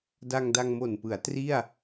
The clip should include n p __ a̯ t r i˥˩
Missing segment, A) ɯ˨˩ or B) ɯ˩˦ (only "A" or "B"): B